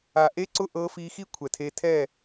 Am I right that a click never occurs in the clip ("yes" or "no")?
no